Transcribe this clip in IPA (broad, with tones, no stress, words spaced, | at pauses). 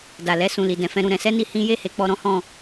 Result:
da˨lɛ˧ sũ˨li˨ dɛ̃˨˦fɛ̃˦ɾũ˧ ɾɛ̃˧sɛ˦ni˧ hĩ˦ je˦˨he˨˦k͡pɔ˧ ɾɔ̃˦hɔ̃˧